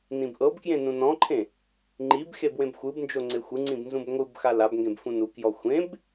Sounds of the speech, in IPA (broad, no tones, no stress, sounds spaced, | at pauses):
n ĩ b ʔ ɤ b k j ẽ n ũ n ɔ̃ ǃʰ ẽ | ŋ͡ǃ i b x e b w ẽ b xʷ ɯ b n d͡ʒ o ŋ͡ǀ e xʷ ɯ ŋ͡ǀ ĩ b n z ũ b ŋʷ ɯ b x a l a b ŋ ɡ ẽ b f ũ n u k j ɔ xʷ ẽ b